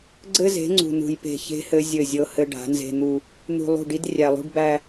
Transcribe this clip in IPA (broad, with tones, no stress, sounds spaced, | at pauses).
ɡ͡ǀ ɘ˦ z e̤˨˦ ŋ͡ǀ ṳ˨ n ṳ˨ j p e̤˨ ç e̤˦ h ɘ˦ zʲ ɘ˦˨ zʲ ɤ˦ h ɘ˦ ɖ a̤˨˦ n z e̤˦ n̪ u˦ | n̪ ṳ˨ lˠ ṳ˦˨ ɖ i˦ d rʲ æ˨ lˠ ṳ˦ ɖ b æ˦